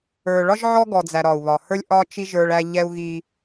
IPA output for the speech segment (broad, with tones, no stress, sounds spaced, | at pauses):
ə˞˨ ɭ ɒ˦ ʒ ʕ ɔ˦ ɡ ɔ˨ d͡z æ˨ ɾ ɒ˨ u̯ β ɒ˨ h ə˞˦ lʲ ʔ ɒ˦ t͡ʃ i˦ ʒ ə˞˦ ɭ æ˦ ʎ ɛ˦ u̯ ɣ i˦